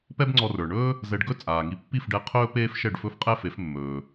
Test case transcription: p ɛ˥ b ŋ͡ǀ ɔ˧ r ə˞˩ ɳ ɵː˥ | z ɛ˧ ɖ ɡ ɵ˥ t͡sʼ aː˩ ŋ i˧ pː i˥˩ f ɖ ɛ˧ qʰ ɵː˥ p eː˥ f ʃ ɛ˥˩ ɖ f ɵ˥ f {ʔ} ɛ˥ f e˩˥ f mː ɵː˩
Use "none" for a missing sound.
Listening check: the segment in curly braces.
qʼ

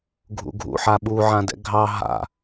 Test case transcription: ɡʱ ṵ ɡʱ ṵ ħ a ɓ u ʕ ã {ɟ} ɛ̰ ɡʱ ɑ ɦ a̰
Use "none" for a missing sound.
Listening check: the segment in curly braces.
d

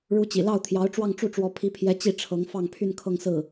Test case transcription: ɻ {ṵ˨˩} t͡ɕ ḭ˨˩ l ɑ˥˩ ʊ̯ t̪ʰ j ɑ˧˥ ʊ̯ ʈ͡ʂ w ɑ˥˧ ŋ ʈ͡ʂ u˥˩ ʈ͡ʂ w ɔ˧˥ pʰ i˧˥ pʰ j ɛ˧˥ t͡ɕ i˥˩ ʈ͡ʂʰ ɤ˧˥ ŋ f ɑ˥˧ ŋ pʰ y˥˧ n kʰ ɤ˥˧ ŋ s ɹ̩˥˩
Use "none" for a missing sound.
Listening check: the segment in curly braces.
u˧˥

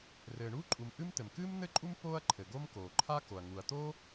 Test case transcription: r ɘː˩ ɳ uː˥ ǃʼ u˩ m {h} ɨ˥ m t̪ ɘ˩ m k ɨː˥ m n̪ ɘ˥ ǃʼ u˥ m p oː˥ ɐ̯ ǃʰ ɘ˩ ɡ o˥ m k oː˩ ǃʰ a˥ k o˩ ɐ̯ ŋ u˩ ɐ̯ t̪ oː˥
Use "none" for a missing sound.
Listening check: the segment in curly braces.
ʔ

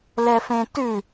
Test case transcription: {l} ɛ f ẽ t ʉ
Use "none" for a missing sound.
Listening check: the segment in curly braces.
l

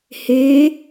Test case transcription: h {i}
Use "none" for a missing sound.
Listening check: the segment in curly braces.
e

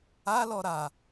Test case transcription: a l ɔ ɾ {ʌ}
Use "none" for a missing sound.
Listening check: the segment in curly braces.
a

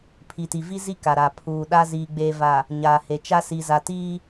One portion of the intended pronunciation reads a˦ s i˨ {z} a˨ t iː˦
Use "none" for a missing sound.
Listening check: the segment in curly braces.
z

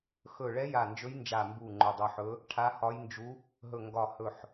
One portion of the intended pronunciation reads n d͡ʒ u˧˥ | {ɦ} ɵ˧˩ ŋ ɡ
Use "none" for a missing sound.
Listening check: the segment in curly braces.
ɦ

